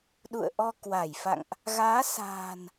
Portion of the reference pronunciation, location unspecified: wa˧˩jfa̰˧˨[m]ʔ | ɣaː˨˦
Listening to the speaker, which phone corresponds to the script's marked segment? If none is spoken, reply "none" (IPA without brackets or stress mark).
ŋ